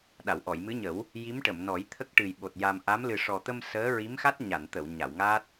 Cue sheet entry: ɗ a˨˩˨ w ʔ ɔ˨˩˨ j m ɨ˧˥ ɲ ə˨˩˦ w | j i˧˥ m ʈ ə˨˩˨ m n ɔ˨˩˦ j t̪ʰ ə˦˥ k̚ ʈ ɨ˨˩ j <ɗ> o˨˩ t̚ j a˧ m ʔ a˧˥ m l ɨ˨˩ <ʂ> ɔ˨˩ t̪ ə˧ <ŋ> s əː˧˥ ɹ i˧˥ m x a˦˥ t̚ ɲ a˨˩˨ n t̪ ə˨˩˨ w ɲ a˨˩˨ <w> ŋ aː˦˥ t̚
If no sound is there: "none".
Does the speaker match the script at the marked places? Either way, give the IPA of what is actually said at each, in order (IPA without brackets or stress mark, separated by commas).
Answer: ɓ, ʂ, m, w